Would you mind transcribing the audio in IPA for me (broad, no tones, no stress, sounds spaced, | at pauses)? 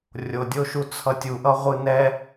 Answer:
rʲ o dʲ o ʃ u t͡sʰ ʌ tʲ u ʔ ʌ ʁʷ ɯ n ɛ